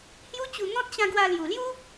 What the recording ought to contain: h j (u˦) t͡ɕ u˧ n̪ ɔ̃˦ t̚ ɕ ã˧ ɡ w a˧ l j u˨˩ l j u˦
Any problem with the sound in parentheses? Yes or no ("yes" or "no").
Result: no